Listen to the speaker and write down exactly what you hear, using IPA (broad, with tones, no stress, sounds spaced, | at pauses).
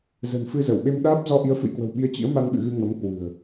z ə̤˨˩ n f ɨ˧ z ə˧˩ w ɓ e˧ m ɗ aː˦˥ p̚ z ɔ˧ ʔ i˨˦ ə̯ f ɨ̰˧˨ j k w ə̤˨˩ w ɓ i˨˦ ə̯ t͡ɕ ḭ˧˥ ə̯ m a˧ n ɓ ɨ̰˧˨ ɣ ɨ˧ ŋ ə˨˦ m k w ɨ̤˨˩ ə̯